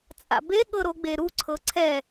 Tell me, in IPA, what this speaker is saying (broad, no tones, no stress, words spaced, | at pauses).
t͡sʼa̰be ɠɤɾoɡ͡beɾu ǀʰɤǀʰɛ